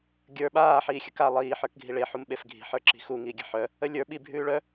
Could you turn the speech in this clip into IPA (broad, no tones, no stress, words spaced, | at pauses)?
ɡʲə˞ ɓaː ħiːxʲəka lˠiː ħə˞kɡʱiɭe ħumɓefɡʱi̤ ħə˞ǁi̤xu ŋiːɡʲə̤ ħœ | əlʲə˞ ɓi bʱʉːɭœ